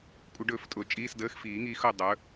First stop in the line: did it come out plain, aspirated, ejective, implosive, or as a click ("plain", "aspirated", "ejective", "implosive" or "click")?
ejective